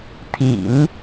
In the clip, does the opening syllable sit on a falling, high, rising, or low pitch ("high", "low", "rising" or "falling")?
low